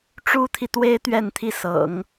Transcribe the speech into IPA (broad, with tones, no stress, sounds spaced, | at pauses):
ʈ͡ʂ u˥ t̪ʰ i˨ t̪ w e˥ ɪ̯ t̪ ɥ ɛ˥˧ n t̪ʰ i˥˩ s ɤ̰˨˩˦ ŋ